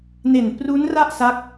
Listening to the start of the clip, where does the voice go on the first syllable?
low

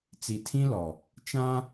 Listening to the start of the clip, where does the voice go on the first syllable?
low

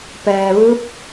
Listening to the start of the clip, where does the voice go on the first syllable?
low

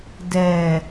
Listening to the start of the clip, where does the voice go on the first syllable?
low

